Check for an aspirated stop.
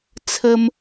present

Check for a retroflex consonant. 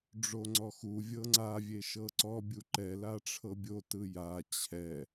present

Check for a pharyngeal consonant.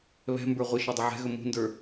present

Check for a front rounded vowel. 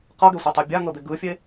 absent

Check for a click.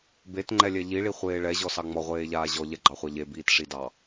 present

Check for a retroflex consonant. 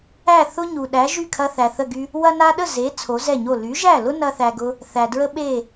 absent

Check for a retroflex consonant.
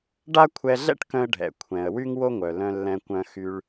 present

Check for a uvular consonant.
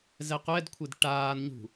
present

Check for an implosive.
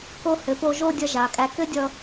absent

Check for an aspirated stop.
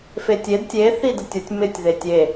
absent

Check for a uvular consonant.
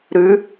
absent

